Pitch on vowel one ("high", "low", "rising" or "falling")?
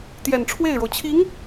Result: low